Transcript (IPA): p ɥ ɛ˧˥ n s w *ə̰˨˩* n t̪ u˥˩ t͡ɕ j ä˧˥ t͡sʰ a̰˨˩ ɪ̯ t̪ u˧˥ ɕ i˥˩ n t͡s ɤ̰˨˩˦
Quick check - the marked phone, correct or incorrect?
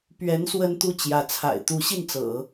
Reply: incorrect